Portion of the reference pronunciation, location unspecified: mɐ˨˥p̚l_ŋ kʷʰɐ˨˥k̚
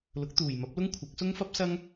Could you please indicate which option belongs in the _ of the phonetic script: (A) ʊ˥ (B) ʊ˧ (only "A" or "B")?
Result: A